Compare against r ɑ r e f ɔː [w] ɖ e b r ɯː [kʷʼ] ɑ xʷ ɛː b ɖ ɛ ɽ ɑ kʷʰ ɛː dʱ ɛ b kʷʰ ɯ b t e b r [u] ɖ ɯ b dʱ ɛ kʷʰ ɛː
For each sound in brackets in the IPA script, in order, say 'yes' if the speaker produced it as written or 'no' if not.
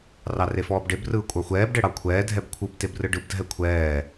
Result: no, yes, no

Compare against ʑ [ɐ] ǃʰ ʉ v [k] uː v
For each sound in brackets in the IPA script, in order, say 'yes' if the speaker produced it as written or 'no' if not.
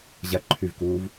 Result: yes, yes

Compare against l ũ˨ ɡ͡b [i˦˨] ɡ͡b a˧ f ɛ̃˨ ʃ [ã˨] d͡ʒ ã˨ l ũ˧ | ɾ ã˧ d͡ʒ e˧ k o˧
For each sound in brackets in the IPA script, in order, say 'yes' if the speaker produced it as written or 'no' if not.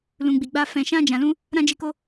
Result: no, no

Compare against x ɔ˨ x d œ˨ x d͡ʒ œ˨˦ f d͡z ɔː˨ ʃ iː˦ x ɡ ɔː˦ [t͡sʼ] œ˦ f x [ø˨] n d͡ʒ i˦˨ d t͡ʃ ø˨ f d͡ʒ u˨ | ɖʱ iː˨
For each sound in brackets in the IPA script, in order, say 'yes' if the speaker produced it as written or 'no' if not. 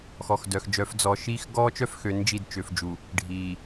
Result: no, yes

